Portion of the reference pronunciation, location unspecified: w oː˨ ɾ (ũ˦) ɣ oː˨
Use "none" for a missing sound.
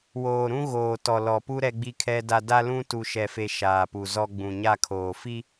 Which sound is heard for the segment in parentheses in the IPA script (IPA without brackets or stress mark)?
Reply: ũ˦